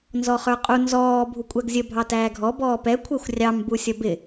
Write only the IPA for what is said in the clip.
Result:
nzɔχə˞qʼu nzɔː bʱukʷʼæɡzʲə bʱɑtæːɡʱɔ bɔːpɛ kʷʰɛxʷrʲɑm busʲʌbɪ

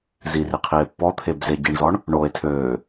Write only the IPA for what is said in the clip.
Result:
ziri qʰie̯pːɔt̪ʰeb zeɟiɳzɔɳ | ɳoe̯ tʰøː

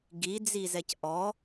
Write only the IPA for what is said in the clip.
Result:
ɡid͡zizɛc ʔɔ

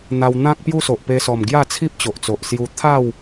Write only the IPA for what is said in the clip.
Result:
n̪a˧wn̪ã˦k̚ pju˦so˨ʔpe˧sɔ˨˩m ɡja˥˧t͡sʰi˦p̚t͡ɕo˨ʔt͡so˨ʔ sju˧ t̪ʰa˥˧w

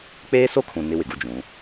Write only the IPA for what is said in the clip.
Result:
k͡peː˦so˦kʰũ˨ nɪ˦wɪ˨ɡu˦d͡ʒũ˨˦

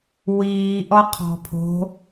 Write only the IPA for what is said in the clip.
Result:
wiːʔɔ qʰɔ̤pʰo̤

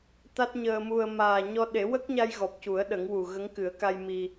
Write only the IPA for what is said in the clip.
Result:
t̪a˦˥t̚ɲəː˧mu˧ə̯ maː˨˩ɲɔ˧ ɗe˨˩˦wə˦˥k̚ɲa˧jɣɔ˨˩p̚ cu˨˩˦ə̯ɗə˨˩˦ŋwu˨˩ ɣə˧˥ŋkɨ˨˩˦ə̯ka˧j mi˧

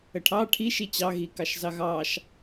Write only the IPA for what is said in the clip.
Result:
əʈʰɑ ʈʰi ʃit͡ɕɑɣi kɑʃzɑɣɑʃ

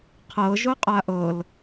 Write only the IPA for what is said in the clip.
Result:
qʰɤʒo qʼaʔɤl

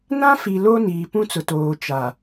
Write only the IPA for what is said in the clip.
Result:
nã˦fi˨ lo˦niː˨ pũ˦t͡sʊ˨toː˨ t͡ʃa˨

